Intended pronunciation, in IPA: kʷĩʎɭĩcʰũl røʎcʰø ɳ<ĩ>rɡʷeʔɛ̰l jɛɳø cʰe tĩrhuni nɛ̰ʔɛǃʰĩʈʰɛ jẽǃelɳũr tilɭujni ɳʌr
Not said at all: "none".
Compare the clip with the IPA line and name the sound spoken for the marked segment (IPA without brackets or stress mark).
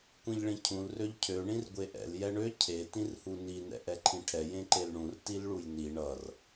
ĩ